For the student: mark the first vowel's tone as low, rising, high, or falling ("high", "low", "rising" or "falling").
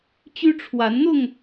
high